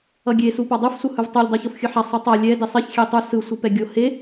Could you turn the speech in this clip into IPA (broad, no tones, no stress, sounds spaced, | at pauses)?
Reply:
ʌ ɡʲ e s u p a dˤ u f s u h ɯ v tˤ u lʲ dˤ i ç o f xʲ ɯ ħ a sˤ ɯ tˤ a lʲ ɛ d i sˤ e ç xʲ e tˤ u s ɯ sʷ ɯ p ɛ ɡʲ o h e